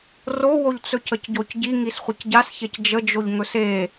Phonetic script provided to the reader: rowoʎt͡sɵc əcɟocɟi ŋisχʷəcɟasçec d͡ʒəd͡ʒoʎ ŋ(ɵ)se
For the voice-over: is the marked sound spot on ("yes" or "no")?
yes